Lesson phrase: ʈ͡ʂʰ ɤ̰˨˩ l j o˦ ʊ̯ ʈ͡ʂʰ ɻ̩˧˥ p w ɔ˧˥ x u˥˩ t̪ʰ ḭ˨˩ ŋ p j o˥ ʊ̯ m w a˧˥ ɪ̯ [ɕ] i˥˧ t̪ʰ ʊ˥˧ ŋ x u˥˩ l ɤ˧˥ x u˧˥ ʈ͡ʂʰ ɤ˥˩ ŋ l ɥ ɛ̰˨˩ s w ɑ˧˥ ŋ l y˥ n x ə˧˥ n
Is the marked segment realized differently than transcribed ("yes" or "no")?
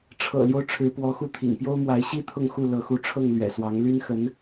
no